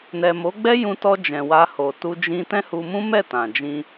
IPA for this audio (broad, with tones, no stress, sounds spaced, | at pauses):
n ɛ˨ m o˨˦ ɡ͡b ɛ˦ j ũ˧ t ɔ˧ d͡ʒ ɛ̃˨ w a˧ h o˨ t u˧ d͡ʒ ĩ˧ t ɛ̃˦ h u˧ m ũ˦ m ɛ˦˨ t ã˨ d͡ʒ ĩ˧